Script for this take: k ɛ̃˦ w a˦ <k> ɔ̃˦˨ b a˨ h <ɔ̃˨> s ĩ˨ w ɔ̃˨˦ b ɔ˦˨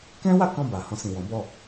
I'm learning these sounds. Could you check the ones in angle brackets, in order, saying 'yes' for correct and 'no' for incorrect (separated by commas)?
yes, no